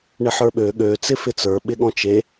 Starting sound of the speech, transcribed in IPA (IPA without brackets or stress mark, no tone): ɳ